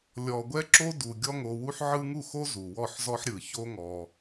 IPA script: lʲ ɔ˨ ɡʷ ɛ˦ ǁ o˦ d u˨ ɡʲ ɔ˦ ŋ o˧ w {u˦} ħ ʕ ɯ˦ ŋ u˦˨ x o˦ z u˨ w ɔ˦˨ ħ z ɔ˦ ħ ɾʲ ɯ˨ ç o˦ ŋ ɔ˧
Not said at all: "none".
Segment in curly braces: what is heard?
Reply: u˦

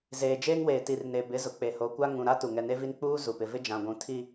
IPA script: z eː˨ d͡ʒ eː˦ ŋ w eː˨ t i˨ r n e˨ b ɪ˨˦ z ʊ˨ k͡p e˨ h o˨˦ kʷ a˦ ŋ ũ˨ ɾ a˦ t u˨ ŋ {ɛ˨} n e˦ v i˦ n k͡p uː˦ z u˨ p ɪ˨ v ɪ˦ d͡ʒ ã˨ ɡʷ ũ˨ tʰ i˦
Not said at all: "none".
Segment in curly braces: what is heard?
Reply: ɛ˨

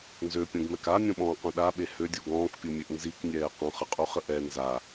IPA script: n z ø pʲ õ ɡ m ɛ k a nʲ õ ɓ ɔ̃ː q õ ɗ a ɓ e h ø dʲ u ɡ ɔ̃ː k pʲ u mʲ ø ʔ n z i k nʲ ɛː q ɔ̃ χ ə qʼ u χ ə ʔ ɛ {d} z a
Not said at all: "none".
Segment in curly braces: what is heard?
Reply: n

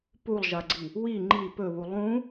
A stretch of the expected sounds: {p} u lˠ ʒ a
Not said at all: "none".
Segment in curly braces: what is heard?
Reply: p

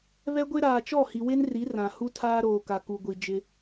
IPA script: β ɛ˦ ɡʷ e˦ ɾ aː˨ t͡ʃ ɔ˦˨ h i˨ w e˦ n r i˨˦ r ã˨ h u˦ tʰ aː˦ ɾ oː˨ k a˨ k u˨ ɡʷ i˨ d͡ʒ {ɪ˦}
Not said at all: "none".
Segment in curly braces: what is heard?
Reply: ɪ˦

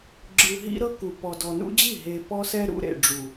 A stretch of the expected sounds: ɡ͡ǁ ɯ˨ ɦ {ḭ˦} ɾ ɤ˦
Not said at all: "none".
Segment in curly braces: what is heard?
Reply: ḭ˦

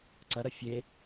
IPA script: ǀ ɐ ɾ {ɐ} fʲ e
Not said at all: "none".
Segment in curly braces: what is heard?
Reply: ɐ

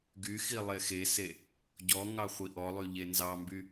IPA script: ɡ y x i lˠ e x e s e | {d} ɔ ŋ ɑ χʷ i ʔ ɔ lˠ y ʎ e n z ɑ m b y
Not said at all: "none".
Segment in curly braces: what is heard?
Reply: ɟ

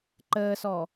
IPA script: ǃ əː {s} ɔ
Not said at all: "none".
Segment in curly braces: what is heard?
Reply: s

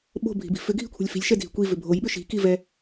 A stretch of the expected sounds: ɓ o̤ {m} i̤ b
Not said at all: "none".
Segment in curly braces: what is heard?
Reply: bʱ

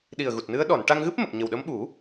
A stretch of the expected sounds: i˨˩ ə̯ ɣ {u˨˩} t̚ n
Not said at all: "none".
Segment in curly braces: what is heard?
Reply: u˨˩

